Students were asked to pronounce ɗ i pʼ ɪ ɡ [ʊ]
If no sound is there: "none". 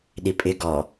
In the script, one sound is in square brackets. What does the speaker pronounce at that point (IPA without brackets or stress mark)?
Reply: ɔ